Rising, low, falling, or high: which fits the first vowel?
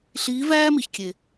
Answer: rising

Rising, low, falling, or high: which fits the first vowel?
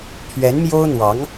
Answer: rising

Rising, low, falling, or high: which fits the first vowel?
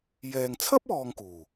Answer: low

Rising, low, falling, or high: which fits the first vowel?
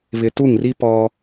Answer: low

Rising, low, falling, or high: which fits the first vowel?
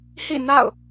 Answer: falling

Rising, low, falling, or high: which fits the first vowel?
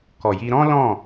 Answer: low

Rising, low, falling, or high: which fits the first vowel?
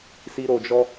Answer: high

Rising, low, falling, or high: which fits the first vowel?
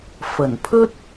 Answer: low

